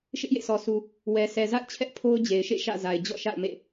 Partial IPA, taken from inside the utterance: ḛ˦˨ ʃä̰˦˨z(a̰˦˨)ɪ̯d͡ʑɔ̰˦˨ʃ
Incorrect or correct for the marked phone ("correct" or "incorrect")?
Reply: incorrect